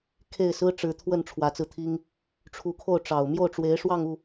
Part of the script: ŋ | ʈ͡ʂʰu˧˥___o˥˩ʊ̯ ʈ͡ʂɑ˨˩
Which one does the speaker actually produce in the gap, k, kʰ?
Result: kʰ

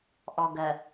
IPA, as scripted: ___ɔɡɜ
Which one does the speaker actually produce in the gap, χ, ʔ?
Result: ʔ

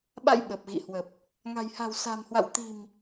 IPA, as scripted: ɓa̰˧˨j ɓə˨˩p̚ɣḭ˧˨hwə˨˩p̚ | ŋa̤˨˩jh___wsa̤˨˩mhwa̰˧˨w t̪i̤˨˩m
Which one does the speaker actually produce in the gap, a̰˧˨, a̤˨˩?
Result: a̤˨˩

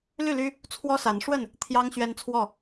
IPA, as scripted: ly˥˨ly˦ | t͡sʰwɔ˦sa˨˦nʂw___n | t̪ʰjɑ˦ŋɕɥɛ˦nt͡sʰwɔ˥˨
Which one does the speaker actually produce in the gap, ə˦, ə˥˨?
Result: ə˥˨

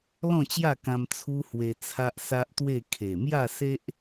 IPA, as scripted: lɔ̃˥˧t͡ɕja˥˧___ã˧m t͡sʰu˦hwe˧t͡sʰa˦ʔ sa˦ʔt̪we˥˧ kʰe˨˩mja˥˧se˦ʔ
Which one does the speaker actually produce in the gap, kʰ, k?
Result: k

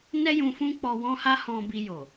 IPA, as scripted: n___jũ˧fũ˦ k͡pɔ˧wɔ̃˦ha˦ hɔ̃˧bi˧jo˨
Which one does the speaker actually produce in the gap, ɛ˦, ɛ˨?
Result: ɛ˦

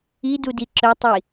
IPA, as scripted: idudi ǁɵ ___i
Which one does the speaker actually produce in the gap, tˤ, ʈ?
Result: tˤ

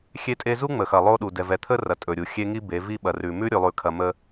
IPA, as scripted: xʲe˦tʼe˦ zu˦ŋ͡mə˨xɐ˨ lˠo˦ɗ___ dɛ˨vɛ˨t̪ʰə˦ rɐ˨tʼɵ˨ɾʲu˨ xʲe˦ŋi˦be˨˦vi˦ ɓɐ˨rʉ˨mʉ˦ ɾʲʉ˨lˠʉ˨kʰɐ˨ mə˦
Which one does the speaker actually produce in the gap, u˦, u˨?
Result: u˨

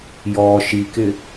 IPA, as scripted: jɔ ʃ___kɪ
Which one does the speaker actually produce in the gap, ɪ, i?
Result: i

